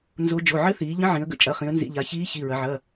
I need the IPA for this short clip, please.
n z o˧˥ d͡ʒ o˩˧˩ ʕ ɘ˧˥ θ iː˩˧ ʎ ə̃˧˥ ʕ ĩ˩˧ ə̯ ɡ ə̰˧˥ t͡ʃʼ ɐ˩˧˩ χ ĩ˩˧ ə̯ n z ḭ˩˧˩ ʎ a˩˧ ç iː˧˥ ç i˩˧˩ ɹ ɐ˩˧ ʕ ɐː˩˧˩

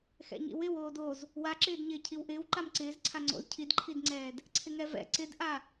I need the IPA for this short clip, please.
x ɛ̰ ɲ ḭ w ɪ w oː d o z | w a ǁ ɪː d ɲ ɪː cʰ i w ʔ ɪː w ǃ a m ǀ ɪː z ǀʰ a ŋ͡ǀ o̰ z cʰ i d ǃʰ i d ŋ͡ǀ ɛː d | ǀʰ ɪ ŋ ɛ v ɛ̰ ǀ ɪ d ʔ a

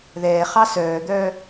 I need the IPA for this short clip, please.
ð ɛː χ ɑ s œː d̪ œː

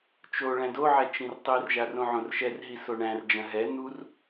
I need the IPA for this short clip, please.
t͡ʃ o ɭ æ̃ d o ʕ ɛ t͡ʃ ĩ r tˤ i r ʒ a r õ ʕ õ r ʃ ɛ r ɦ i s o ɳ æ̃ r d͡ʒ ɐ̃ ɦ ɛ n̪ u r

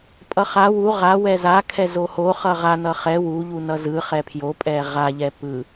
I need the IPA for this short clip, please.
pʼ ʌ χ a w u ʁ a w ɛ z a kʰ ɛ z o h o χ ʌ ʁ a n ʌ χ ɛ w u ʎ u n ʌ z ɯ χ ɛ pʰ j o pʼ ɛ ʁ a ʎ ɛ p ɯ

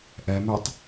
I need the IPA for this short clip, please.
ʔ ɛ m ɛ tˤ

